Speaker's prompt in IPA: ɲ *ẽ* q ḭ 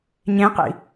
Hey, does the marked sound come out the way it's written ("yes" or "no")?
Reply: yes